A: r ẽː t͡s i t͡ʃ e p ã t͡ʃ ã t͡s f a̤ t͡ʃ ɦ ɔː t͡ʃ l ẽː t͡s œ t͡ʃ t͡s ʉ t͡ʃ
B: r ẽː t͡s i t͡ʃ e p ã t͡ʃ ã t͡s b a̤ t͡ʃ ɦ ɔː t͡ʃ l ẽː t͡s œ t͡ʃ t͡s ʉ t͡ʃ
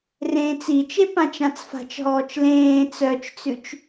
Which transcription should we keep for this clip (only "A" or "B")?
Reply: A